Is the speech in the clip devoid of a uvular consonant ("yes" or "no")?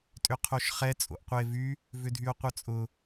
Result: no